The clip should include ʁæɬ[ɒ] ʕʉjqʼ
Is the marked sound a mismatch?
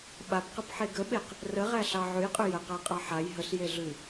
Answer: yes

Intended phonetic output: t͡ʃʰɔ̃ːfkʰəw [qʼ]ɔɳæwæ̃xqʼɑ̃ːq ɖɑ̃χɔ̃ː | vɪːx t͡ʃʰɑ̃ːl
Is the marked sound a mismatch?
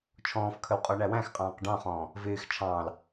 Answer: no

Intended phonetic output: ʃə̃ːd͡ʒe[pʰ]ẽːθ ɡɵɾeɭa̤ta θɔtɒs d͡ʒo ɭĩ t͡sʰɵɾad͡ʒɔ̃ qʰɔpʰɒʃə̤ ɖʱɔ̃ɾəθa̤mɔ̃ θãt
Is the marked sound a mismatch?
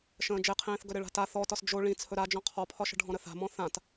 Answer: yes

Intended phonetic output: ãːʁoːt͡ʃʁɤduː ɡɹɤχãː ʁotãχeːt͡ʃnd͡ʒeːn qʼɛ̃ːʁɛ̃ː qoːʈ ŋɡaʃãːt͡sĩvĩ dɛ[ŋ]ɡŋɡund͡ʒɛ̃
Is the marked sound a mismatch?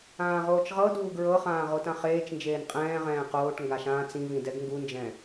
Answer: yes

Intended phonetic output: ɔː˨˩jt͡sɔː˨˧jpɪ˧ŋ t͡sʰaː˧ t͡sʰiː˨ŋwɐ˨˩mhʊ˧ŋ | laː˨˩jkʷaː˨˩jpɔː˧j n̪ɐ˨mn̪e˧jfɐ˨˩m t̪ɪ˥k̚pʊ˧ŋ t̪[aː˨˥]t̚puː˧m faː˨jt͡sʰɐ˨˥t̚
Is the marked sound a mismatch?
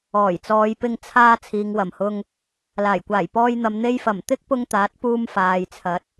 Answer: no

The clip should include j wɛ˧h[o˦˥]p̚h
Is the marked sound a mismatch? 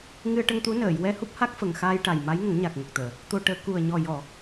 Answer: yes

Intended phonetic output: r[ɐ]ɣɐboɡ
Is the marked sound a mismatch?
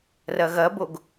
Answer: no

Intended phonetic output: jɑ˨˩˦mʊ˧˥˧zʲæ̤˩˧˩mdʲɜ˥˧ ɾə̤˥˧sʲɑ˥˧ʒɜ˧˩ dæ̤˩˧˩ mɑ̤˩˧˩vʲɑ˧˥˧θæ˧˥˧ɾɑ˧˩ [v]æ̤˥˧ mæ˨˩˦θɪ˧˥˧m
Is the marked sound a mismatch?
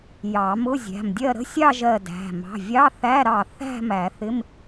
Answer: yes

